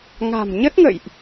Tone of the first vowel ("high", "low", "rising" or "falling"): low